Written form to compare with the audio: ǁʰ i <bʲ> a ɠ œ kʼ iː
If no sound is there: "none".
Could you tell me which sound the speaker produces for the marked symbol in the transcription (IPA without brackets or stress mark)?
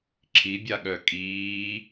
bʲ